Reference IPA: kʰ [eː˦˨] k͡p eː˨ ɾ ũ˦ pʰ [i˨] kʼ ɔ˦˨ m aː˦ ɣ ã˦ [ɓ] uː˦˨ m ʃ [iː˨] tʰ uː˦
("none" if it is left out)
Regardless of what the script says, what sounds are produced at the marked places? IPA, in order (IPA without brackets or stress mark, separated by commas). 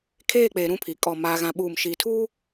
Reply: eː˦˨, i˨, ɓ, iː˨